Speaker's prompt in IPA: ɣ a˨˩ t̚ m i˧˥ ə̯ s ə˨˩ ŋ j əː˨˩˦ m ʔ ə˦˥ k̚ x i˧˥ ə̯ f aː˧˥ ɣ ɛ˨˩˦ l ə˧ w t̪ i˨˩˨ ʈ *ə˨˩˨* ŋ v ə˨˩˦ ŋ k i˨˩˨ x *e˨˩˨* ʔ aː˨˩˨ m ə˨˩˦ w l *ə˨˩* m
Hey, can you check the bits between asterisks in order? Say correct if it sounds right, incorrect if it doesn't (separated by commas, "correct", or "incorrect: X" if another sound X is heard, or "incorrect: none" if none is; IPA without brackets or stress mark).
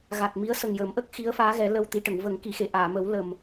correct, correct, correct